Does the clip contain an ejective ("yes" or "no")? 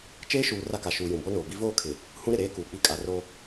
yes